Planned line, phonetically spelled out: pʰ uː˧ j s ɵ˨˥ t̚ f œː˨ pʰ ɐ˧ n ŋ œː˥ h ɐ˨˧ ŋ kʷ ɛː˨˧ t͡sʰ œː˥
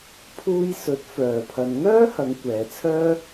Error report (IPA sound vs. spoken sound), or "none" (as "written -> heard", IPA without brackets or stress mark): none